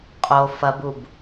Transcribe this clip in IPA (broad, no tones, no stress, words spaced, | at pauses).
qʼo fɐbub